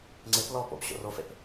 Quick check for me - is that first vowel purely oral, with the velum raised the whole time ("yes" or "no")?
yes